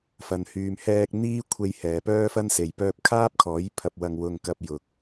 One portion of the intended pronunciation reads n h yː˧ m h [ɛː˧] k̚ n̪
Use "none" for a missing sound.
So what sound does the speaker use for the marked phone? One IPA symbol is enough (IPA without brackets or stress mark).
ɛː˥